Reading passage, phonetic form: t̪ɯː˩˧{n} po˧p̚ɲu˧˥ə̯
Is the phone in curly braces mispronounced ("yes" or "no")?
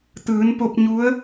no